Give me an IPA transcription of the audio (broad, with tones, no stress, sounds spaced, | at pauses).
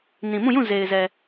n ĩ˨ m ũ˦˨ j ũ˦˨ z e˨ ɪ̯ z ɛ˨